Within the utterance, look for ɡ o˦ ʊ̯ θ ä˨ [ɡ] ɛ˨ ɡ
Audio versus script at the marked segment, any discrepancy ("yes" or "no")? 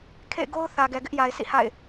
no